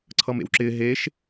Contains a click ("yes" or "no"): yes